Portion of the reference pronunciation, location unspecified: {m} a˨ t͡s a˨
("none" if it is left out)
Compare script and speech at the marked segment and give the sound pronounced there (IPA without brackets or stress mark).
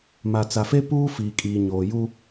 m